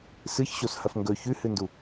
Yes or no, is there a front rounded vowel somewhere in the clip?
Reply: no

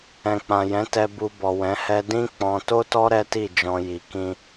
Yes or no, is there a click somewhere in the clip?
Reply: no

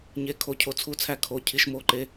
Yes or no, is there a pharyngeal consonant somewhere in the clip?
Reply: no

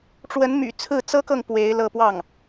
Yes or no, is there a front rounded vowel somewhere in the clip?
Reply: yes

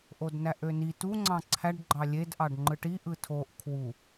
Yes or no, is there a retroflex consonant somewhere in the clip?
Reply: yes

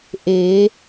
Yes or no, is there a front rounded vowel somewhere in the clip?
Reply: no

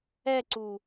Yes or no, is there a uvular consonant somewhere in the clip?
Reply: no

